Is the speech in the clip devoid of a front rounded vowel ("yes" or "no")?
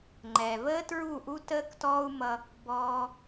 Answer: yes